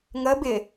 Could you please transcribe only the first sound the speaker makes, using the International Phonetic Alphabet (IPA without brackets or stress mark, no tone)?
ŋ